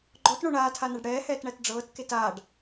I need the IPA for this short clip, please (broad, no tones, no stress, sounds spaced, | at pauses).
ɡ͡ǃ ɔ t ɳ o ɳ aː tʰ a n a ɖ ɽ ɛː h ɛː t ɳ æ t ɖ͡ʐ ɤː t k e t aː ɖ